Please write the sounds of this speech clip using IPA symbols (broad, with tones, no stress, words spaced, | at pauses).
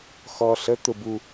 xɔ˧ɬə˧˥ t̪ʊ˥bu˥